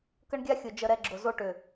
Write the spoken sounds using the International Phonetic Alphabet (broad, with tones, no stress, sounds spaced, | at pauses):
k ə˦ ɳ ɡʲ a˦ xʲ ʊ˨ d͡ʒ ə˨ ɾ ɛ˨ ɡ͡ǁ ʊ˨ z o˦ ʈ ʏ˨